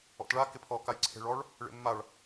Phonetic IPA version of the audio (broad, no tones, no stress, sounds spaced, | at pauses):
ɔ̰ t ɭ a k ɪ pʰ ɔ k a j ǀʰ e̤ ɭ ɔ ɭ | ɭ ḛ mː a ɭ